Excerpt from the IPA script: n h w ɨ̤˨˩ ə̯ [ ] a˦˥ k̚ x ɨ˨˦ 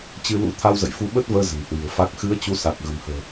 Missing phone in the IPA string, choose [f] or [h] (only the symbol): f